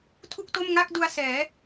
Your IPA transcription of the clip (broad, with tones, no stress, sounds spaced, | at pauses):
tʰ u˥˩ k̚ t o˥˩ m ŋ a˥˩ k̚ d u˧ a̯ s ɛː˩˦